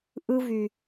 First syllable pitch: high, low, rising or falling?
high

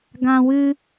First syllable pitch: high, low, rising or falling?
high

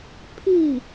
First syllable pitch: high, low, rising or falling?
falling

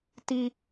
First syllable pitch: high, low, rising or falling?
high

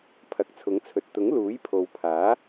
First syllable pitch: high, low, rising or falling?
low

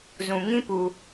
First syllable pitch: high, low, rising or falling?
low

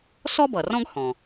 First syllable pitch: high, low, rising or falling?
high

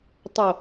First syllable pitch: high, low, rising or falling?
low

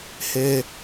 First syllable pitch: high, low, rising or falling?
high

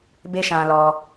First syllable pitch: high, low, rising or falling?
high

